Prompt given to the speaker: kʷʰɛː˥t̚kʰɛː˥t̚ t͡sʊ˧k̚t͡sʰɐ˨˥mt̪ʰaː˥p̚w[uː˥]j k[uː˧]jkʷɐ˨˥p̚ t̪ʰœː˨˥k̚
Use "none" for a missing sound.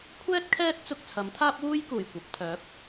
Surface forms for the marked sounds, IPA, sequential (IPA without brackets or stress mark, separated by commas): uː˥, uː˨˩